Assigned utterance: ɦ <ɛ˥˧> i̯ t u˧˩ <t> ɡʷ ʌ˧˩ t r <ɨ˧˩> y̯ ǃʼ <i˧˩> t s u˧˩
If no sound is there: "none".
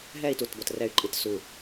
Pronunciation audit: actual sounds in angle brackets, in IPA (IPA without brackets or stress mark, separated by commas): ɛ˥˧, t, ɛ˧˩, i˧˩